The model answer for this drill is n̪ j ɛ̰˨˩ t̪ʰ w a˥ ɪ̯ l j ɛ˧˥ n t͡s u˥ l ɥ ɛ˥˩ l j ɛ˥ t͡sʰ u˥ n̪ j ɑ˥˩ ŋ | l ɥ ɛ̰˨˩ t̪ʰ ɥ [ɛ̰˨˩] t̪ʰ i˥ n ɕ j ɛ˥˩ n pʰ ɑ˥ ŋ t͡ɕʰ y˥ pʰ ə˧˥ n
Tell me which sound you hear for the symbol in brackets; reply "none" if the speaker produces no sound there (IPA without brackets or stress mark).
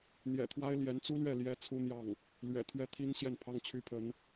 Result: ɛ˥˩